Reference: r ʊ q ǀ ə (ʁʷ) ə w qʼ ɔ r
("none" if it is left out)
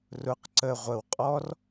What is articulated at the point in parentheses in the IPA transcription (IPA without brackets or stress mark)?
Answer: ʁʷ